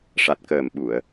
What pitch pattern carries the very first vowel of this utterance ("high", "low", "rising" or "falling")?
low